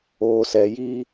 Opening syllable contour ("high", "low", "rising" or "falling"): low